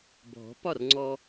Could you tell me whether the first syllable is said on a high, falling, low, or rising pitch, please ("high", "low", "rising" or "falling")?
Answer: rising